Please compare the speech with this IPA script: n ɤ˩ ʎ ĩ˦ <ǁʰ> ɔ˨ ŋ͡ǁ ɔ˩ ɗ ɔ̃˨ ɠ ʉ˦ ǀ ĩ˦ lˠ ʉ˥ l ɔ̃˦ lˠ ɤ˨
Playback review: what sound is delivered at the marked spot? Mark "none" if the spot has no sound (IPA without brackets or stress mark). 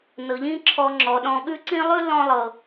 ǁʰ